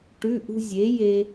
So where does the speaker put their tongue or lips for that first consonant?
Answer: retroflex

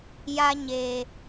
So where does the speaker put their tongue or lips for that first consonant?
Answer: palate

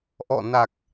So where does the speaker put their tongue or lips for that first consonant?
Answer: throat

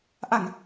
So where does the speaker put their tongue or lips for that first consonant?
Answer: throat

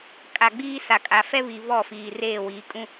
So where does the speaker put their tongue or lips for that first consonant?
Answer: velum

